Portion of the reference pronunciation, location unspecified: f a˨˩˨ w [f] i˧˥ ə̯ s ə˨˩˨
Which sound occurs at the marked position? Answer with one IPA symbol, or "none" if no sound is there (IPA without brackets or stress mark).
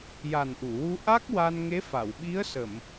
ɓ